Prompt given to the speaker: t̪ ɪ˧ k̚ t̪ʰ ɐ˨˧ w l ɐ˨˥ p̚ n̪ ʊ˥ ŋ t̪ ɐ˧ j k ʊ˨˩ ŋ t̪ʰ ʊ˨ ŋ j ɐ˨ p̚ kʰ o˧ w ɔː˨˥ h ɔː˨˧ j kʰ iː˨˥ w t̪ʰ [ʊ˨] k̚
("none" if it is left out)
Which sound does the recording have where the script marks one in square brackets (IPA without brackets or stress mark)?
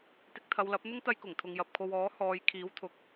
ʊ˨˥